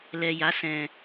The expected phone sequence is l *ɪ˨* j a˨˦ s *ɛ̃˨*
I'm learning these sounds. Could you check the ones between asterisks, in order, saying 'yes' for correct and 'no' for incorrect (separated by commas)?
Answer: no, yes